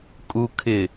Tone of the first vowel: low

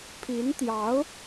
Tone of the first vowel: rising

